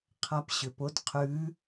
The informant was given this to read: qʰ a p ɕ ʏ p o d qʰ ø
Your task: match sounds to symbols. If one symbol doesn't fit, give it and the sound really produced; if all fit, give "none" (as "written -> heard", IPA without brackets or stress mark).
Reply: ø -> ʉ